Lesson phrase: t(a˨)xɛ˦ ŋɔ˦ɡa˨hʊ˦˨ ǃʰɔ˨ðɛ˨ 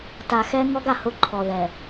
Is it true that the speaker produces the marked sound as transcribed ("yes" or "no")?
yes